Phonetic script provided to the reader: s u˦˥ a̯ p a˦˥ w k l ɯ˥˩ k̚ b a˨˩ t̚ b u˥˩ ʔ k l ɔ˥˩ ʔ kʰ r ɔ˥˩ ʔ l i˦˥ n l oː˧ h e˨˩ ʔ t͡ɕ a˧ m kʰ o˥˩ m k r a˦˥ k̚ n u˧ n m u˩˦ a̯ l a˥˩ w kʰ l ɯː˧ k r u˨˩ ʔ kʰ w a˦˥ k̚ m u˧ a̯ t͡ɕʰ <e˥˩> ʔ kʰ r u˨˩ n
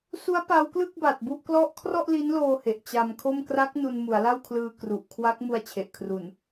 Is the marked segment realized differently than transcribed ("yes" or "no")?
yes